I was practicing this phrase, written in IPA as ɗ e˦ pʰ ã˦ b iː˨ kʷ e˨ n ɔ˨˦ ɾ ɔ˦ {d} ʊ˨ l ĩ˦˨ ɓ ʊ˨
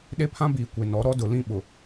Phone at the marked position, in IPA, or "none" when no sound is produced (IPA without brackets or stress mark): d